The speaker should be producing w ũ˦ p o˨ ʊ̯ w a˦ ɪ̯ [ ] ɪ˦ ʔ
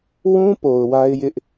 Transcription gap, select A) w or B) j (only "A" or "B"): B